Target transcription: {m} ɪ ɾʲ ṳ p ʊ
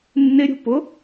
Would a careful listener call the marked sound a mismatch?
yes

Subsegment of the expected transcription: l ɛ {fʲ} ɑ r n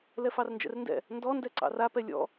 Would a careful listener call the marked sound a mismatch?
yes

